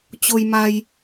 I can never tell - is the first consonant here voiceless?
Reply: yes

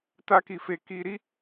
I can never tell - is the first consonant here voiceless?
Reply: yes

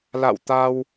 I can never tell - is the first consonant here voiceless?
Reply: no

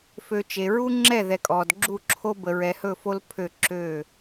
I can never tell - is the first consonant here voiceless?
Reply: yes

